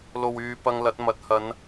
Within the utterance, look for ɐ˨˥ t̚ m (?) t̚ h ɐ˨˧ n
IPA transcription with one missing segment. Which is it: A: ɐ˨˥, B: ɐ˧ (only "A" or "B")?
A